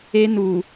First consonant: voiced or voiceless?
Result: voiced